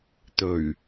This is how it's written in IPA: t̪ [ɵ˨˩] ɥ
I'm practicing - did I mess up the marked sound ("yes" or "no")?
no